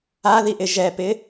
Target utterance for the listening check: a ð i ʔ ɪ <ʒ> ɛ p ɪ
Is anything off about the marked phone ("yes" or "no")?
no